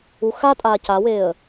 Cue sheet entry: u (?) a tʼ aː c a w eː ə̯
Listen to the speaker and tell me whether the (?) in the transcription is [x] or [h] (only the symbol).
x